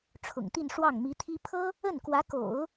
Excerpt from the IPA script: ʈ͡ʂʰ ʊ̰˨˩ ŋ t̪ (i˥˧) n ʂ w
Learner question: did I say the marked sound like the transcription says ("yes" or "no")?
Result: yes